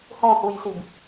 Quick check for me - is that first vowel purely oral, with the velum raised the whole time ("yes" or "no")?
no